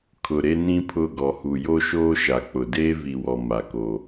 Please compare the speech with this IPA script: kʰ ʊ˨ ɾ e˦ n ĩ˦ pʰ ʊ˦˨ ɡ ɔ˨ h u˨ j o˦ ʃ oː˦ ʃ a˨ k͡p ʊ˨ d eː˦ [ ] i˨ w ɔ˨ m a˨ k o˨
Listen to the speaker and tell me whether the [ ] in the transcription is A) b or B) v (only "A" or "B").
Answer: B